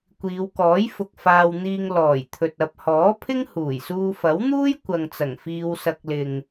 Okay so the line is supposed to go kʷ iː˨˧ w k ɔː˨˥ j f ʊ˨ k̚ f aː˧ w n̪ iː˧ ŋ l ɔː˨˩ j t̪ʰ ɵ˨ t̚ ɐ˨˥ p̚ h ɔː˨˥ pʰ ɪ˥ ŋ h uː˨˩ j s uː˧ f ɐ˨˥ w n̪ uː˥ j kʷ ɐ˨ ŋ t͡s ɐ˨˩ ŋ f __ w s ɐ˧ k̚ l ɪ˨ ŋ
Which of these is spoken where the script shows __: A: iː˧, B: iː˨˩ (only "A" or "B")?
A